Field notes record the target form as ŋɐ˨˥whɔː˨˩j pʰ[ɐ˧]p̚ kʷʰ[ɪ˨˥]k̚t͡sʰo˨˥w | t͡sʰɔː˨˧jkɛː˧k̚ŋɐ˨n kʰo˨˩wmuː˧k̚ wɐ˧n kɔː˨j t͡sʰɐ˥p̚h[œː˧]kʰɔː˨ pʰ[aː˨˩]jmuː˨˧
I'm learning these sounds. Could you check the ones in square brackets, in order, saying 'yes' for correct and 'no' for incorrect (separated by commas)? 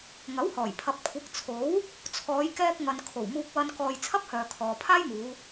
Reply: no, yes, no, no